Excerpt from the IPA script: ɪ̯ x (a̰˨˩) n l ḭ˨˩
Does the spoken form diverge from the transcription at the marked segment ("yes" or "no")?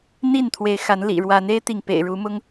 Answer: yes